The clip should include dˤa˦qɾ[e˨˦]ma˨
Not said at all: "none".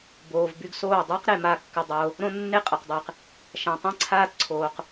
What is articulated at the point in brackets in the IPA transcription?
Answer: e˨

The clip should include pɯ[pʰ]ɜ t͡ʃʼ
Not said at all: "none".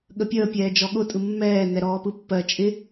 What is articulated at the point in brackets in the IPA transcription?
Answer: pː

